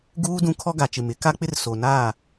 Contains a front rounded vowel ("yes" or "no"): no